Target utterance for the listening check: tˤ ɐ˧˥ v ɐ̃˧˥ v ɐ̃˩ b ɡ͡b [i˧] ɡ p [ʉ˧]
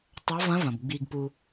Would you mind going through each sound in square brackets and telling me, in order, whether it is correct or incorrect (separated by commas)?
correct, incorrect